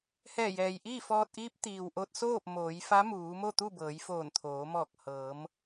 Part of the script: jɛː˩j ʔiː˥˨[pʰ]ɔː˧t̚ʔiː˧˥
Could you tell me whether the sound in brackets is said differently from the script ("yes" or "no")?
yes